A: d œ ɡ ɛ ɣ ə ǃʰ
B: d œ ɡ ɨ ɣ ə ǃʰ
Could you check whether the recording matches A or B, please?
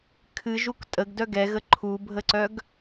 A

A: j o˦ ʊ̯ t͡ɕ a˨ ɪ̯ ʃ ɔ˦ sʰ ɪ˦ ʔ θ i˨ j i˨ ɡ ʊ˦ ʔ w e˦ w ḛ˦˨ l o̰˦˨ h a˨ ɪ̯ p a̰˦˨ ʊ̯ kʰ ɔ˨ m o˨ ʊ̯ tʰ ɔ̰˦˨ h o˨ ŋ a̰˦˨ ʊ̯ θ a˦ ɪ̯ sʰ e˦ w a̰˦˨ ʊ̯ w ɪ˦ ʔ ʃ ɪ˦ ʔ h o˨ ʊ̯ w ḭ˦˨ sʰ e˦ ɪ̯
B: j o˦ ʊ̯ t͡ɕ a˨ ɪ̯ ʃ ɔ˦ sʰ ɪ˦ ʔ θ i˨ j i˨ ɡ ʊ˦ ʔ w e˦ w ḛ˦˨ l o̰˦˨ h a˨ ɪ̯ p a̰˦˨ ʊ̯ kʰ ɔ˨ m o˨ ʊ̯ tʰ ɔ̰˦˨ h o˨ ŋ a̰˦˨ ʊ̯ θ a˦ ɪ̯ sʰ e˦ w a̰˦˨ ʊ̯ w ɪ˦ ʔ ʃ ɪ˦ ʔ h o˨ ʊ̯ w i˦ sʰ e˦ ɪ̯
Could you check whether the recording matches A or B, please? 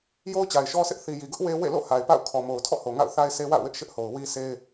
B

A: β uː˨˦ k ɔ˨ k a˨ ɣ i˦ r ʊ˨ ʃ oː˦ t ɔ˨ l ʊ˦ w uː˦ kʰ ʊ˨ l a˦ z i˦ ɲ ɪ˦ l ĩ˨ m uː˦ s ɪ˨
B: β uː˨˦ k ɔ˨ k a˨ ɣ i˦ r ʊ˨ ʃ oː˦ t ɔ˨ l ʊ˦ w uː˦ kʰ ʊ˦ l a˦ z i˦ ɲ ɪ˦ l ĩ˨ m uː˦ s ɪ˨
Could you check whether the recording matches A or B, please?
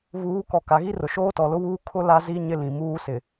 B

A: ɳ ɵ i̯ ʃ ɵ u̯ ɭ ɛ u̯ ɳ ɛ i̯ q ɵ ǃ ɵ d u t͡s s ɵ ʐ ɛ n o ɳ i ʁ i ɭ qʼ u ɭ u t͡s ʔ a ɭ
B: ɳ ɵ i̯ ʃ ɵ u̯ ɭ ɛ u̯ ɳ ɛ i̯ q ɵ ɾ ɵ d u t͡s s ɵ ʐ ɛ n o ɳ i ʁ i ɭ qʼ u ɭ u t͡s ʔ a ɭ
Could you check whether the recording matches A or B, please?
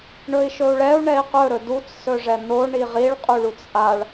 B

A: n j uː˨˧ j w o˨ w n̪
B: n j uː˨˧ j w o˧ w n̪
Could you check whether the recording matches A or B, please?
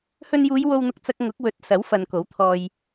B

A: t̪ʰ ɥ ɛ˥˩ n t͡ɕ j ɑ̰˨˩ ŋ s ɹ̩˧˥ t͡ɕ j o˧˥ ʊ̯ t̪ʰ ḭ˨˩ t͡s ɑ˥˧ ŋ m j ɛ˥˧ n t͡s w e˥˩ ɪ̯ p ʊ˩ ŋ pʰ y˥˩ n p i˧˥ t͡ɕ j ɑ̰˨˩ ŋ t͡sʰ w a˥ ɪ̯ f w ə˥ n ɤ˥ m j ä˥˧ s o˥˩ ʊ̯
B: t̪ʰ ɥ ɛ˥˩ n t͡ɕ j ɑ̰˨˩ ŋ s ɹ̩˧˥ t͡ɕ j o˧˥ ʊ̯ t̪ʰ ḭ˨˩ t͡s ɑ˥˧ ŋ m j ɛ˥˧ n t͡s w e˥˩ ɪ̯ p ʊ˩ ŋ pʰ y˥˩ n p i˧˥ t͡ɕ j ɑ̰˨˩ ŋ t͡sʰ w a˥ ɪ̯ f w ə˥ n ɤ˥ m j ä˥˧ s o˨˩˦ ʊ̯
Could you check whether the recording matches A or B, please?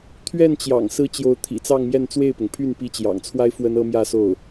A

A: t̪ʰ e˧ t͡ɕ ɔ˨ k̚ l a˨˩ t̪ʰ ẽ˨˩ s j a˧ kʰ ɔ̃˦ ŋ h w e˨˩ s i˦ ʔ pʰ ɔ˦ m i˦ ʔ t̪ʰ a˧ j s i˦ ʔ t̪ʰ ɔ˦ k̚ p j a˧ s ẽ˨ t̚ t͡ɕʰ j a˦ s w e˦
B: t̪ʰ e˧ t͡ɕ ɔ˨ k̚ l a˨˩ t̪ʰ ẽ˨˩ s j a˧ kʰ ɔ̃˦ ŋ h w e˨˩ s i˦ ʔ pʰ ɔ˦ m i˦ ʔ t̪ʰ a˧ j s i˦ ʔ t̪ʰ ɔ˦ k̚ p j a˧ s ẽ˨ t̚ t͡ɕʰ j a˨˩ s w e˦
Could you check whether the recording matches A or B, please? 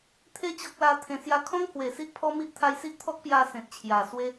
B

